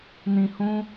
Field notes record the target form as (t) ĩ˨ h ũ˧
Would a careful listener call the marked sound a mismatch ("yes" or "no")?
yes